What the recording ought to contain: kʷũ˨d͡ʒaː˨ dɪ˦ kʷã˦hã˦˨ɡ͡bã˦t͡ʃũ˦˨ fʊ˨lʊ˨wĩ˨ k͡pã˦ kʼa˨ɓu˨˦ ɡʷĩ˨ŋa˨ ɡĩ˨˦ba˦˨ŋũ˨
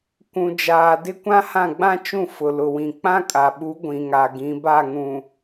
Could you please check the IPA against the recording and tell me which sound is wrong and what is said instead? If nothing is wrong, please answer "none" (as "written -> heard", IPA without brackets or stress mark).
none